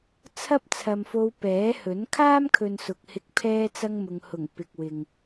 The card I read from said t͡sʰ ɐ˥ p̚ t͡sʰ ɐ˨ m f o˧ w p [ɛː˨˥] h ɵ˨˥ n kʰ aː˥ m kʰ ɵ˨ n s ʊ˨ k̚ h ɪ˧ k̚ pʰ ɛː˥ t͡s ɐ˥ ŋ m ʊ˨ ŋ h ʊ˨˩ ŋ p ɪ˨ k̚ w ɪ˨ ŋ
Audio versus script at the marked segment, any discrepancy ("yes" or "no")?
no